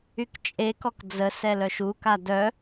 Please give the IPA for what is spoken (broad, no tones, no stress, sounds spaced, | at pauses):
y k t͡ʃʼ e k ɔ k d͡z ə s ɛ l œ ʃ u k a d œ